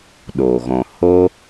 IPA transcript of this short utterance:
ɗoː˨ ɣɔ̃˨ ho˦

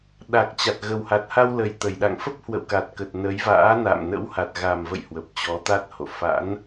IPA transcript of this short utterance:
ɗa˨˩k̚t͡ɕa˨˩t̚ ɣə˨˩wha˨˩t̚ha˧wlə˨˩j t̪ə˧˩jɗa̰˧˨ŋ fə˦˥p̚hwə̰˧˨wka˨˩t̚kə˨˩t̚ nə˨˦jva̰ː˧˥ na̰ː˧˨mnə̰˧˥wha˨˩t̚ ɣa˨˩mvə̰˧˨j hwə˨˩p̚t͡ɕɔ˨˦t̪a˦˥t̚ho̰˧˨ fa̰˧˥n

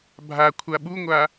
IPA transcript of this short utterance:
bʱa kʷʰaɓuŋʷa

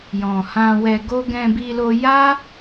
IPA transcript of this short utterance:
jɔ̃˧ hã˧wɛ˧ ɡo˦ ɡɛ̃˧bi˧lo˧ ja˦

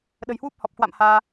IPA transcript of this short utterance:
ɗə̤˨˩jhwu˦˥p̚hɔ˨˩p̚kwa̰˧˨m haː˧

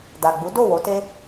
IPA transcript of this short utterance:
da˨ɡ͡bu˨˦ do˦˨ wo˨˦te˦

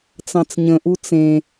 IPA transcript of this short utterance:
t͡sɑ̃t͡sɲə̃ʔu t͡sẽ

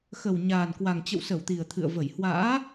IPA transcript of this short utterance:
xə˨˩w ɲaː˨˩nkwa˨˩ŋt͡ɕə̰˧˨wsə˧˩w t̪i˨˩ə̯t̪ʰɨ̰˧˨ə̯və˧˩j hwa̰ː˧˥

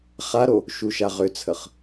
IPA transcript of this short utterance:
χaɾo | ʃuʃaʁʏt͡sʰəχ

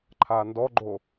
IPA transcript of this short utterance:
ǃʰandɔɡ͡ǃo

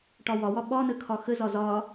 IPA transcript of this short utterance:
ʈɒwɒwɒ ɓɒnə kʰɒxəzɒ zɒ

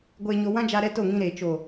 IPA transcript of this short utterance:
ɡʷeː˧ɲo˧ wã˦d͡ʒa˧ɾɛ˧ to˦˨ŋĩ˧ɾeː˨ t͡ʃo˨

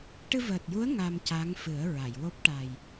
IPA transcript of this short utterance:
ʈɨ˧vəː˨˩t̚ju˧˥ə̯ ŋa˧mca˧˥ŋ fɨ˨˩˦ə̯ɹa˨˩˨jwo˦˥p̚ ʈa˨˩j

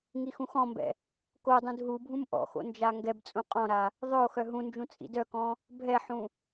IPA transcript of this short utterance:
ŋixũxɔ̃mbɛ̰ | kodˤũd ɦubʱũm ʔɔ̰xo̰ nd͡ʒaŋɡɛbt͡sʼũ qʼɔ̃ɾa | ðˤœo̯xœ ɦũnd͡ʒũ t͡sʼḭdœkɔ̃ | bʱɛħũ

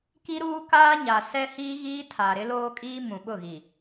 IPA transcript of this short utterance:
ki˦ɾuː˦kaː˦ ɲa˨ sɛ˦hiː˦ɣiː˦ tʰa˨ɾɪ˦loː˦kʼiː˦ mũ˨ɓʊ˦˨ɣi˨

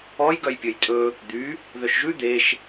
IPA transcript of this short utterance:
ɔj ɡœjpʲɵjtʼɵ | d̪y | ðœʃʒʉ d̪eʃ

